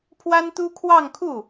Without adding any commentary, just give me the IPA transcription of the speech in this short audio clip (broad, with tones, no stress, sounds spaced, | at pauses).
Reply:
pʰ w a˥ n t̪ u˥ kʰ w ɑ˥˧ ŋ kʰ u˥˩